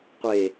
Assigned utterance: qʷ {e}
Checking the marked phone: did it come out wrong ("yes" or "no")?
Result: no